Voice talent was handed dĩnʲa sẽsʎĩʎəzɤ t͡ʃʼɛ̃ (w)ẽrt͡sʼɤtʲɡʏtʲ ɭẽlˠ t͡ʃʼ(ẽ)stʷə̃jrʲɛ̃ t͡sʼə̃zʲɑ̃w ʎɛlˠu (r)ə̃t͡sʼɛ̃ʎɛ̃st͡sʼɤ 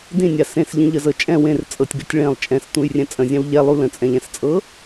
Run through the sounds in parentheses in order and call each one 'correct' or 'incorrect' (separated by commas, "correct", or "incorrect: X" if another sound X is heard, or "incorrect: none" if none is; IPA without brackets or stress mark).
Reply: correct, incorrect: ɛ̃, incorrect: l